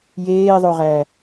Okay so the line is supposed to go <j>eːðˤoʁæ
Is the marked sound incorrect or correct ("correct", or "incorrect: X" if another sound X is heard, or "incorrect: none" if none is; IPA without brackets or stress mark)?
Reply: correct